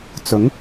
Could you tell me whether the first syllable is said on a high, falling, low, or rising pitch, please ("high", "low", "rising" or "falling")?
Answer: rising